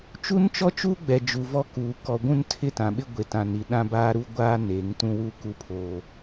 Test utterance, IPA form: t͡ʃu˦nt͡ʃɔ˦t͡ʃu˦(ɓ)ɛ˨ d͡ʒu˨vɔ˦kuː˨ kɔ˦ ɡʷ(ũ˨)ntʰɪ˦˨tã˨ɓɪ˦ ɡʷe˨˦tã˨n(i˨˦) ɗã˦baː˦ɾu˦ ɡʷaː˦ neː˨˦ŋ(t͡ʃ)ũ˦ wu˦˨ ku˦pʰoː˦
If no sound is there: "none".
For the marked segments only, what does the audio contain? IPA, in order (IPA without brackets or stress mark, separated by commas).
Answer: ɡ͡b, ũ˦, i˨, t